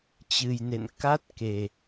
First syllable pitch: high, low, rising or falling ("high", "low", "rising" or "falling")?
low